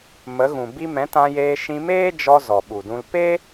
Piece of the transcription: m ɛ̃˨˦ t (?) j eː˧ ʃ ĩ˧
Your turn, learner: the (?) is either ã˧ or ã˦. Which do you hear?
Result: ã˧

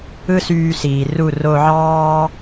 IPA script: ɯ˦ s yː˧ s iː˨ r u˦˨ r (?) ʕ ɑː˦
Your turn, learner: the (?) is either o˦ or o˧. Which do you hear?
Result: o˧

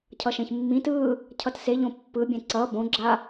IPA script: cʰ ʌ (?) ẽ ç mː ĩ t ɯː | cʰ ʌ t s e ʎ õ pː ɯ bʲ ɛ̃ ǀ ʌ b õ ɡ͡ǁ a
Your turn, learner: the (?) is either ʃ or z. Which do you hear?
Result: ʃ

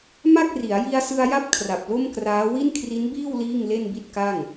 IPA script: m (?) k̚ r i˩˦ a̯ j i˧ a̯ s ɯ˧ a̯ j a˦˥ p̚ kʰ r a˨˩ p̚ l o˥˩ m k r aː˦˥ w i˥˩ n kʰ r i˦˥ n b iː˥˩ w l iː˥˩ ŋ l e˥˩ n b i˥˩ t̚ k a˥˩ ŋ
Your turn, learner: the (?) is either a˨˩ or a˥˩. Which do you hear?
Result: a˥˩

